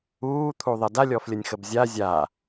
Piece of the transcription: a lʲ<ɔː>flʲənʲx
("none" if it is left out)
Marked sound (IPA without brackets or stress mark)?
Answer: ɔ